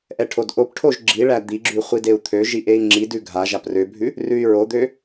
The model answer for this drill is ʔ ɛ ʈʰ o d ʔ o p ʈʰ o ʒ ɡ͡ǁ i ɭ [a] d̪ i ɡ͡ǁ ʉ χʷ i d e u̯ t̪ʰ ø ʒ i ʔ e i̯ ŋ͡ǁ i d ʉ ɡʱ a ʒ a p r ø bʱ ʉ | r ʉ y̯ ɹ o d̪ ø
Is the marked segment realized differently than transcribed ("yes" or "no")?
yes